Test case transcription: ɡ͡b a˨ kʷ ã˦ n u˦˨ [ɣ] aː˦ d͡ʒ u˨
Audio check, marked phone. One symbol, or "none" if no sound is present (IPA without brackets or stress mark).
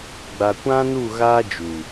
ɣ